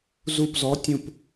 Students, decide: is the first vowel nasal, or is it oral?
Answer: oral